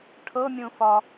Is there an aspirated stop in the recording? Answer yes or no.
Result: yes